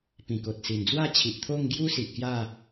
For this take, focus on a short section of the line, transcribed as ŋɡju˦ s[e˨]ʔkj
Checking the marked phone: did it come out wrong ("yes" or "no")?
yes